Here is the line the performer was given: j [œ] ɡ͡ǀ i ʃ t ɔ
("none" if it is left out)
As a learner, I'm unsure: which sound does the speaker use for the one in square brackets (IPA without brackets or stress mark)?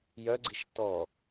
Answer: œ